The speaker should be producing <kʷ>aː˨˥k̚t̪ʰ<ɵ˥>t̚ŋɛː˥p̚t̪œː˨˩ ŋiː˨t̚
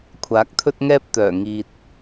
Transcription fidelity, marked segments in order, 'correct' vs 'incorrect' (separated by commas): incorrect, correct